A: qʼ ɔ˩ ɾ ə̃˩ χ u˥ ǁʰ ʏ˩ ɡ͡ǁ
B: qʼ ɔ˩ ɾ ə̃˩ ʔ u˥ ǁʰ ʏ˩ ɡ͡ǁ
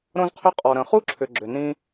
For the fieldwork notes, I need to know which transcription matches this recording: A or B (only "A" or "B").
A